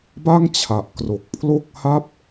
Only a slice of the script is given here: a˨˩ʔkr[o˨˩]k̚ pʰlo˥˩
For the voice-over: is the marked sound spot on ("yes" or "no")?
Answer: yes